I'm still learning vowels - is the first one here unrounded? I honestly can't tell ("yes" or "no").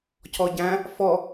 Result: no